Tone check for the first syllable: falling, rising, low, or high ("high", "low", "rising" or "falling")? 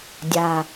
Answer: low